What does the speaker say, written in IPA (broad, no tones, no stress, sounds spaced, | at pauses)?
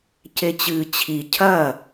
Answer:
c e t͡ɕ ɨː t͡ɕʰ i cʰ ɐ